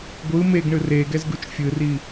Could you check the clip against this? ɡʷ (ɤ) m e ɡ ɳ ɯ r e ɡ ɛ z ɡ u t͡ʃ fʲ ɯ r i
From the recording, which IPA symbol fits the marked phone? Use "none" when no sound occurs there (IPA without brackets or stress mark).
ɯ